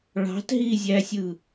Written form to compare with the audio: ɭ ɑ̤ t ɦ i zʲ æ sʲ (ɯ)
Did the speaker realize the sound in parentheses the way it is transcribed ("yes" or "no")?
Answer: yes